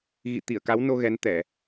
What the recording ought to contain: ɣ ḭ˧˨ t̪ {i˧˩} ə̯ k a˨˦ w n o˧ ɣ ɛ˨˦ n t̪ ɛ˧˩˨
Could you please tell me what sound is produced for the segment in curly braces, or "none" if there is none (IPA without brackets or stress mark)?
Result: i˧˩